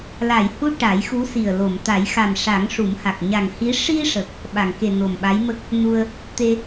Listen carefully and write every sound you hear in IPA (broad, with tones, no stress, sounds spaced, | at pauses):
l a˨˩˨ j h u˧˥ ʈ a˨˩˦ j x u˧˥ s i˨˩ ə̯ l o˨˩˨ m t̪ a˨˩˦ j x a˨˩ m ʂ a˨˩˦ ŋ ʂ u˨˩˦ m h a˨˩ k̚ ɲ a˨˩ ŋ h i˧˥ ʂ i˧ ʂ ə˨˩ k̚ | ɓ a˨˩˨ ŋ k e˨˩ n o˨˩ m ɓ a˧˥ j m ə˦˥ k̚ | n u˧ ə̯ | t̪ e˧